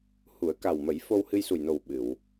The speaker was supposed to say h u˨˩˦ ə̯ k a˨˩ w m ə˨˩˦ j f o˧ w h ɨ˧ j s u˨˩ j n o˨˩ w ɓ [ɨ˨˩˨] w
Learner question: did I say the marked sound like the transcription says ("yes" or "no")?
yes